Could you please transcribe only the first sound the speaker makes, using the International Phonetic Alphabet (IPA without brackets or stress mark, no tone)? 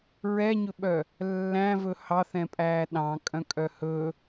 ɹ